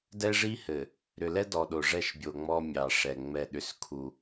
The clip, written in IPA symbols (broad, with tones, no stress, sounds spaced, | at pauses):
d ɛ˦ ʐ i˦ h ɘ˨ | ɾ ʏ˨ l ɛ˦ d ɔ˨ ɗ o˨ ʐ ɛ˦˨ ʃ bʲ o˨ ŋ͡m ɔ˦ mʲ ɑ˨ ʂ ɛ˨ ŋ͡m ɛ˦˨ ɗ ʏ˦ s kʰ u˦